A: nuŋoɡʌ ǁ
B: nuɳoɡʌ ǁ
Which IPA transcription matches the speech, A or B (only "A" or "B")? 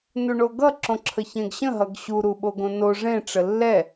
B